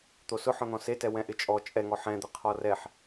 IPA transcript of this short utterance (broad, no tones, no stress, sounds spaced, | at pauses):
t̪ o s ʊ ħ ɔ̃ n̪ ɔ̃ s e t ɛ w ɛ̃ ʔ ɪ t͡ʃʼ ɔ t͡ʃʼ ɛ ŋ ɔ ħ ɛ̃ d̪ ɪ qʰ ɔ r ɛ ħ